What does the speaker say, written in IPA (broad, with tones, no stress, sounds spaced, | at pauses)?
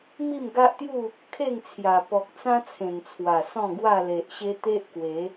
m i˥˧ m ɡ a˦ ʔ t̪ j u˥˧ | kʰ e˥˧ ŋ t͡sʰ j a˨˩ p ɔ˨ k̚ t͡s ã˦ t͡sʰ ẽ˨˩ n t͡sʰ w a˨˩ s ɔ̃˥˧ ɡ w a˥˧ l e˨ ʔ ɕ e˦ t̪ e˦ ʔ k w e˨˦